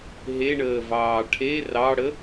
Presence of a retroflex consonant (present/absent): present